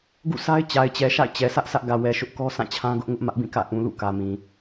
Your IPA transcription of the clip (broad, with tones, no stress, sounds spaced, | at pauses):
ɡ ṵ˦˨ sʰ a˦ ɪ̯ t͡ɕ a˨ ɪ̯ t͡ɕ ɛ˨ ʃ a̰˦˨ ɪ̯ t͡ɕ ɛ˨ s ä˦ ʔ s ä˦ ʔ ɡ ä˨ w ɛ˨ ʃ ʊ˦ ʔ k ɔ˦ s ã˦˨ t͡ɕʰ ã˦ ɡ ʊ˦ ʔ ŋ ʊ˦ ʔ m ä˦ ʔ b ĩ˦˨ k ä̰˦˨ ʔ ũ˨ l ṵ˦˨ k ä˨ m ĩ˨